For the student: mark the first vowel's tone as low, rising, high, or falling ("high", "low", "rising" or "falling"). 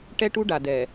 high